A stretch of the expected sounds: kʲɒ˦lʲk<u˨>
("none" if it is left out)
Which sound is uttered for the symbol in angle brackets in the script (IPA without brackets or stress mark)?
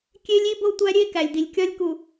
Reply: u˨